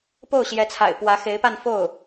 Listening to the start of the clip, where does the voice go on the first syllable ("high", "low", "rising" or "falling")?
falling